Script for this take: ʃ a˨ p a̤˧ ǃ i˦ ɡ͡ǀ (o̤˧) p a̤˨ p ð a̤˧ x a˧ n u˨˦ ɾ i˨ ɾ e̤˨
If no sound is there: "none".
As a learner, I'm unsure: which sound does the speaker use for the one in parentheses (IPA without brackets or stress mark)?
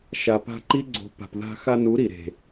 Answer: o̤˨